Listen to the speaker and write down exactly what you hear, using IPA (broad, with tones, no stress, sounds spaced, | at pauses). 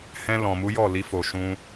h ɛ̃˧ l ɔ̃˨ m u˨˦ j ɔ˦˨ l i˧ f o˨ ʃ ũ˧